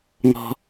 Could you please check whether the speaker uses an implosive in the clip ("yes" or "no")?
no